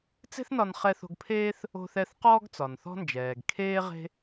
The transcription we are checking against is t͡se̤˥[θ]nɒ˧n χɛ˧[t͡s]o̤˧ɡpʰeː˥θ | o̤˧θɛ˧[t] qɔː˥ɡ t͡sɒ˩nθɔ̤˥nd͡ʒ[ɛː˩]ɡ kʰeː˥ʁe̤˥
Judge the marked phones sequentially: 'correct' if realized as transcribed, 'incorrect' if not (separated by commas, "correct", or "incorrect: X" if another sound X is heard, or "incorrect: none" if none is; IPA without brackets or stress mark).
correct, incorrect: θ, incorrect: θ, correct